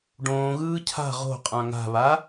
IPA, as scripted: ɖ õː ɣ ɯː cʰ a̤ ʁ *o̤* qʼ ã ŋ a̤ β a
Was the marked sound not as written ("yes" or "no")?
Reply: no